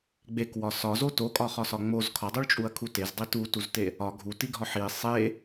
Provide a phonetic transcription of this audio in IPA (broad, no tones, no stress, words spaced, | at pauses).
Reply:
ɡ͡bekwɒ sɒzo tokʼɒχɒsɒ ŋ͡moz kʰɒdˤuɭt͡ʃʼuɐ̯kʰu tezdˤi tutuzte | ɒ ɡʱutiɡʱɒ ħi sˤe